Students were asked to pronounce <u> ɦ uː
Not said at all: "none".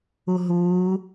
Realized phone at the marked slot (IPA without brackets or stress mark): u